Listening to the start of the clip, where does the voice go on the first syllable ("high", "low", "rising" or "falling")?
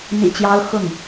low